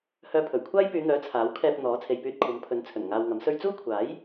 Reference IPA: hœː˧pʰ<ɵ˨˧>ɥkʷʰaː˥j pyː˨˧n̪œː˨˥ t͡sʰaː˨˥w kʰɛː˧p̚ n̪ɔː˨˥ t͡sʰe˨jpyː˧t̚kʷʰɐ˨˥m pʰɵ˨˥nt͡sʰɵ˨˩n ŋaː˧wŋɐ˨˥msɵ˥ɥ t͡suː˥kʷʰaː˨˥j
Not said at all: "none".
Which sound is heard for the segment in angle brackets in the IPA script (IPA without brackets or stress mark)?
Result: ɵ˨˩